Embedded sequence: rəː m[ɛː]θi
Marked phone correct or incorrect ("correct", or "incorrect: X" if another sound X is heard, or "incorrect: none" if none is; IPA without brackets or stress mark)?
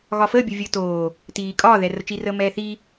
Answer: correct